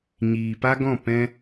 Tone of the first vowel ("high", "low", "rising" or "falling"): low